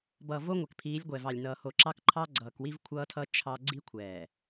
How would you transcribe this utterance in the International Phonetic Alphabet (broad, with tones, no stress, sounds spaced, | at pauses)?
b ʌː˨ v o˦ ŋʷ ɛ˨ k pʰ iː˨˦ lʲ ɡʷ ɛ˨ v ɑ˨ lʲ n ʌː˨ h o˨ ǁ ɑ˦ k ǃʰ ɑ˦ ɡ͡ǀ ʌː˨ k w i˦ v kʷʰ ʌː˦ tʰ ʌ˦ t͡ʃʰ ɑ˦ ɡ͡ǀ i˦ kʷʰ ɛː˨